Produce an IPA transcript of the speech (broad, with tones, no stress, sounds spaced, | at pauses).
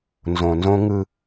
n z õ˨ n z õ˦ ŋ ɯ˦